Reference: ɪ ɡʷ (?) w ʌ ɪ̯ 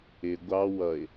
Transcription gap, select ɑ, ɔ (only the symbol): ɑ